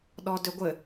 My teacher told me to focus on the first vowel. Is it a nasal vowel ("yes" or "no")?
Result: no